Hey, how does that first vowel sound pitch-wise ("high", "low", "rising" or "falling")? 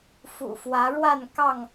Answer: low